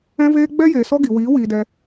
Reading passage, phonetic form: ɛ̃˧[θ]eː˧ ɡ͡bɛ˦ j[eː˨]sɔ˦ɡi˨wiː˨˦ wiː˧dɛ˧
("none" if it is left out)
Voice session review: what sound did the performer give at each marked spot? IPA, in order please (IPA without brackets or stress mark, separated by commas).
v, eː˨